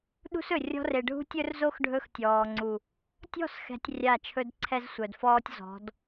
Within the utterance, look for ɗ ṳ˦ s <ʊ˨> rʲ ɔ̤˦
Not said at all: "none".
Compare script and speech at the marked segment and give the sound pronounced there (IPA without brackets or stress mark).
ɵ˨